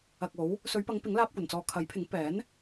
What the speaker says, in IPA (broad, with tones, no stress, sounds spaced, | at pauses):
ɐ˨ k̚ o˨˥ w | s ɵ˨˧ ɥ p ɐ˨˧ ŋ p ɪ˨˥ ŋ l aː˧ p̚ kʷ ɐ˨˩ n t͡s ɔː˨ kʰ ɐ˨˥ j pʰ ɪ˨˥ ŋ p ɛː˨˥ n